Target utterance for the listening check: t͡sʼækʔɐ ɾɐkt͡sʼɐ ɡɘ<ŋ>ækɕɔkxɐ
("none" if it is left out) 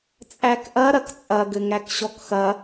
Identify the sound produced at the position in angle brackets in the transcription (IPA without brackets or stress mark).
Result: ŋ